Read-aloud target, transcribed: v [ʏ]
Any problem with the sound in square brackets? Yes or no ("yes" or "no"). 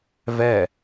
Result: yes